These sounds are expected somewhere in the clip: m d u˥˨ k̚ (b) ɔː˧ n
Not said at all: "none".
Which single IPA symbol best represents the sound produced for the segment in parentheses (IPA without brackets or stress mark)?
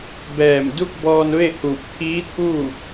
b